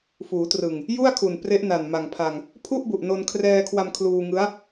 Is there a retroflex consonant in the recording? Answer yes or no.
no